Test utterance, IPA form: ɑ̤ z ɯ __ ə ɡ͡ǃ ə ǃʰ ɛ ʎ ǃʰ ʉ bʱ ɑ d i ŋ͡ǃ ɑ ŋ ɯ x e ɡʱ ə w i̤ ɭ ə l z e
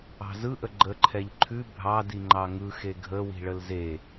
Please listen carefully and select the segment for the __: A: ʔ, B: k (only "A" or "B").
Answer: A